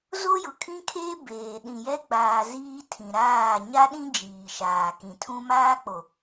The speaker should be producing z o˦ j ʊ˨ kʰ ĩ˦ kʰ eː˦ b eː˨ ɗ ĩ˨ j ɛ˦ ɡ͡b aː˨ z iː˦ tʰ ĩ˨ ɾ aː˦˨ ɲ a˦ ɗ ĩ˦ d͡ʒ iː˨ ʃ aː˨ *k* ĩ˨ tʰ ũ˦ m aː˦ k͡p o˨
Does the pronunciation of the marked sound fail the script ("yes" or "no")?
no